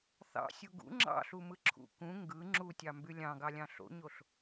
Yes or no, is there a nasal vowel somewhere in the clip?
yes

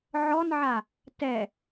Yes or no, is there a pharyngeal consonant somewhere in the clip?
yes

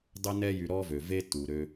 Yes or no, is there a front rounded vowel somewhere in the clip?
yes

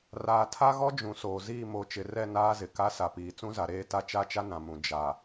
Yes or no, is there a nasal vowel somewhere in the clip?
yes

